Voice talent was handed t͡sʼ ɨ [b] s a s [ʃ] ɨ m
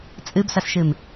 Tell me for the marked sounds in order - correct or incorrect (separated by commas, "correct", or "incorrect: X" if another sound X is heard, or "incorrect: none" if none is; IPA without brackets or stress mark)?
correct, correct